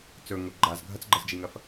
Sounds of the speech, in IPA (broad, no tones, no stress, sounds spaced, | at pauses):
t͡s ɵ ŋ o ɡ͡ǃ a z ɡʱ ɐ t͡s ɡ͡ǃ ɐ z d͡ʒ i ŋ ɐ f